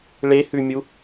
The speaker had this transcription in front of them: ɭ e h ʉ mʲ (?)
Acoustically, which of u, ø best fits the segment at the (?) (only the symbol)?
u